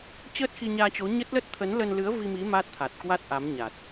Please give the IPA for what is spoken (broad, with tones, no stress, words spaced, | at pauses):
t͡ɕəː˦˥t̚xi˧ɲaː˧t͡ɕo˨˦ ɲə˦˥t̚lə˦˥t̚ t̪ʰə˨˦nlə˧nlɨ˨˦ə̯ vi˧mi˨˦ maː˦˥t̚t̪ʰa˨˩t̚kwa˦˥t̚ ʔa˨˦mɲa˨˩t̚